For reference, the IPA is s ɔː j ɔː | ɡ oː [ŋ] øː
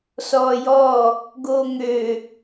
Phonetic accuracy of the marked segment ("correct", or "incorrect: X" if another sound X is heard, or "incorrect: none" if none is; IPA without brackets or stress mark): correct